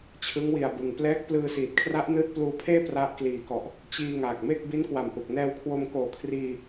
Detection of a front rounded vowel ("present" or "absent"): absent